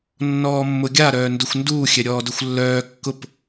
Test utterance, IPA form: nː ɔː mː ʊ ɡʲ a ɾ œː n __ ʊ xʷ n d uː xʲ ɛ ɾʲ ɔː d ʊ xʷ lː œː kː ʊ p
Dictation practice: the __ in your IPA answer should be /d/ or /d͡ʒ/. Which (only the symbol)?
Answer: d